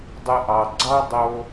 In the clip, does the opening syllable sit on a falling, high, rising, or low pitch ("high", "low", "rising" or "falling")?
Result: low